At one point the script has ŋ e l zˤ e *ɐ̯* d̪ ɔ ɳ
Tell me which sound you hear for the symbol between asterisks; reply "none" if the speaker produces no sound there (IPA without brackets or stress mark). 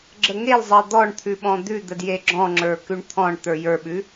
ɐ̯